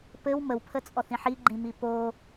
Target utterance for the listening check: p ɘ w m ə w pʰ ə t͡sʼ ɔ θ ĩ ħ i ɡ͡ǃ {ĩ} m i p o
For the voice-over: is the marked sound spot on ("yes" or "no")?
yes